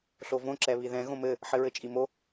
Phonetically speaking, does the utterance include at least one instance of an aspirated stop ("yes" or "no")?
no